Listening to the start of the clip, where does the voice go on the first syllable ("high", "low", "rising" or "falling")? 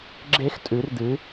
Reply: high